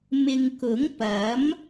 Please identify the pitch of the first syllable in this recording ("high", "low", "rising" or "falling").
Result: low